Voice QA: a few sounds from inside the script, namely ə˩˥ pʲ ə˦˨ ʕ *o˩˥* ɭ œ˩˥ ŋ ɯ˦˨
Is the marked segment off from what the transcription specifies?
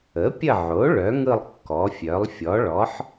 no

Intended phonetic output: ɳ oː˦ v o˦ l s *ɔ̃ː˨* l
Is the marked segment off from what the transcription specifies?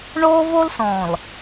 no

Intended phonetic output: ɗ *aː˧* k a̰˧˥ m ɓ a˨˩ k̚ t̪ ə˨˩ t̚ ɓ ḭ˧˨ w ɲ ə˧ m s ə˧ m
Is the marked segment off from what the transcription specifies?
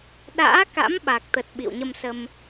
yes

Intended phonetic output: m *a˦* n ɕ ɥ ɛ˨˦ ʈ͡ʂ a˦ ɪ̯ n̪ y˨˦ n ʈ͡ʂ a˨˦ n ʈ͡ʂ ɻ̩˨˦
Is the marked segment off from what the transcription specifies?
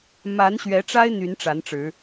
yes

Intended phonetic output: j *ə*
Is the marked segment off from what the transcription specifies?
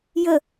no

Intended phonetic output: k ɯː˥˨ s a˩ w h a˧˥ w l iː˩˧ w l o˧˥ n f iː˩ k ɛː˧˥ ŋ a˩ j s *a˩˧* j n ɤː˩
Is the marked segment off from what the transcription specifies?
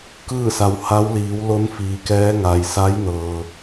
yes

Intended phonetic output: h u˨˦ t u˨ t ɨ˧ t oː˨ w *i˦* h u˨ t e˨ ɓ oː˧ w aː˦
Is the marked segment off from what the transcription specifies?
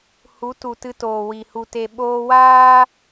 yes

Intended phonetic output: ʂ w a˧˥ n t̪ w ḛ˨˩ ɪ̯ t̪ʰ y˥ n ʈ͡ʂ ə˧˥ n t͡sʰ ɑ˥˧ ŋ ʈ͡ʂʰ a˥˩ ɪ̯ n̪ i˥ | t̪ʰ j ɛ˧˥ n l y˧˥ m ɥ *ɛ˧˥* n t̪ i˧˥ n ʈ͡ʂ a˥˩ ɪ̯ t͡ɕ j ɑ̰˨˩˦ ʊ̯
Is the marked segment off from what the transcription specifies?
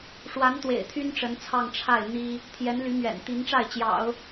yes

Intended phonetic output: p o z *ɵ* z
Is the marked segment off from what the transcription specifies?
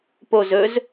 no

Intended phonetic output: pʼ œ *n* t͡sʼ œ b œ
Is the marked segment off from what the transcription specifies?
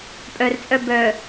yes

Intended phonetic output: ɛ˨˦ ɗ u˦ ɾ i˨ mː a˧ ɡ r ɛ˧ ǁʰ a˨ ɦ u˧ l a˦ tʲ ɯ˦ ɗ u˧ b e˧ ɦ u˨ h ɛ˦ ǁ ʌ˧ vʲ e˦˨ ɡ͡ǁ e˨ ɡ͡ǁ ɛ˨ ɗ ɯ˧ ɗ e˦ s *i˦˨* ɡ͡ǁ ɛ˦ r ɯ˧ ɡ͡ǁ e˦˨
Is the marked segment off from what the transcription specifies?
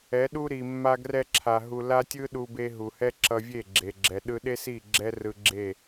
no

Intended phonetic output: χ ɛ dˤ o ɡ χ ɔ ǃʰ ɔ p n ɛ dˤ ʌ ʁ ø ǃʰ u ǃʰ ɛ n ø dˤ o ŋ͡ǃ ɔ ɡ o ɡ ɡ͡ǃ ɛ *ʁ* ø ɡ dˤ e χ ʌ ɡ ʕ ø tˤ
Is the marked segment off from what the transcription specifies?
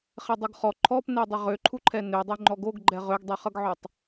no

